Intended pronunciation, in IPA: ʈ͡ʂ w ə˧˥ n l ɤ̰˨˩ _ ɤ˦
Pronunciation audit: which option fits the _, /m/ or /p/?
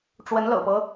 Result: p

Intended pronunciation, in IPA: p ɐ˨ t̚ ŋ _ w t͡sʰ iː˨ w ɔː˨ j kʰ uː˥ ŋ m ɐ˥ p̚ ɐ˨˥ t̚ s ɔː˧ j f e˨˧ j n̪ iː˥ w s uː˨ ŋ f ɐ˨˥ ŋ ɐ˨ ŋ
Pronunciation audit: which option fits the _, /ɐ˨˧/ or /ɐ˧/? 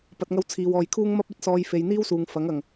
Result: ɐ˧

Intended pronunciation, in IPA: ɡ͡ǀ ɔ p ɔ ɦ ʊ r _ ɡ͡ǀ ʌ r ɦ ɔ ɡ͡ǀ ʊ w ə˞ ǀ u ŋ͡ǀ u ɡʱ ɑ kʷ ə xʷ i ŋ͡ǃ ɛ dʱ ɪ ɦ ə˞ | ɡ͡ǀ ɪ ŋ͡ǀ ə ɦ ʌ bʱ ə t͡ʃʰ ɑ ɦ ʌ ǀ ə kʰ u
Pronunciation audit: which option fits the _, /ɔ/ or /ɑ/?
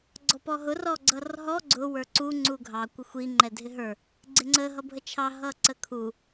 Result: ɔ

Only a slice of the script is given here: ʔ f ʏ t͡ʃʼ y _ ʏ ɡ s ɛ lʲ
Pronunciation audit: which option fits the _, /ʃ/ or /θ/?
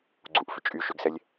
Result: ʃ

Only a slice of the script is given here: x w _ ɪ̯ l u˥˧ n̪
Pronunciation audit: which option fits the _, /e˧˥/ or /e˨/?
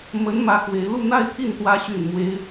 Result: e˧˥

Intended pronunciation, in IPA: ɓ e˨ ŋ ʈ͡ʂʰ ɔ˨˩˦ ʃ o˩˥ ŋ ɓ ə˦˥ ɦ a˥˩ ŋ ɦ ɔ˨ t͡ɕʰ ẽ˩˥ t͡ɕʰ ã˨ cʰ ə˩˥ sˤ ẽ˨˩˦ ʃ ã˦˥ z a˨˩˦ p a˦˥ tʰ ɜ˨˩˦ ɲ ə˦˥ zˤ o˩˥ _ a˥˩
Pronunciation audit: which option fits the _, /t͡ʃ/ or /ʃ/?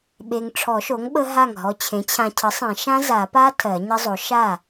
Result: ʃ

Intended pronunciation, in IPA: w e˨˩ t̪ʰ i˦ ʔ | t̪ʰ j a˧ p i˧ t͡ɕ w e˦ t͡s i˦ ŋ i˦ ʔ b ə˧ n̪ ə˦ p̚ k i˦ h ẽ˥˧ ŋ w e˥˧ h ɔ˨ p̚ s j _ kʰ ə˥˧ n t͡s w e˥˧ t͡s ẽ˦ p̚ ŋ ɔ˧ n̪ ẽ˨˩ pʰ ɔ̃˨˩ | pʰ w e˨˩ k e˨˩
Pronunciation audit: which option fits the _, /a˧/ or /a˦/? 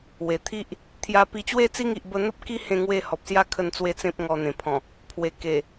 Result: a˦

